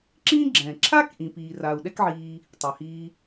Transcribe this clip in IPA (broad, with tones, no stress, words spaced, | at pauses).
ǁĩː˥ɡ͡ǁɛ̃ː˩ ǁʰa˥k ʔĩ˩piː˩ra˩u̯ ɗɛ˥kʕiː˧ | tˤɛ˩hiː˧